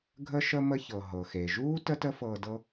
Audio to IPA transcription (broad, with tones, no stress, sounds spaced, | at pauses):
ɡʱ ə˥ ʃ ə˥ m ə˥ ç ɤ˩ ɦ ɤ˩ x e˩ ʒ uː˥ t ə˥ t ə˥ f ɤː˧ d ɤ˥